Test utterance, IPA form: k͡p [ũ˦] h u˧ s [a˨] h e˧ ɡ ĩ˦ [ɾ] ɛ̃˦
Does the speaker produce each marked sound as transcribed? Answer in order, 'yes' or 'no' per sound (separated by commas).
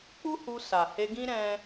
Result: no, yes, yes